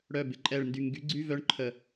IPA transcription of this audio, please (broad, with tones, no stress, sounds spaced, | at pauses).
ɽ œ˧˩ b ɪ˧˩ ǃʼ ɛ˧˩ ɭ n d y˧˩ ŋ ɡ y˨˥ ɡ͡ǀ y˧˥˧ v œ˧˥˧ ɳ ǃʰ ə˧˩